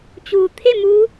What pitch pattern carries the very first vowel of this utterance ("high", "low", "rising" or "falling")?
low